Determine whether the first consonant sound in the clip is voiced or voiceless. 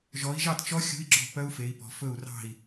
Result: voiced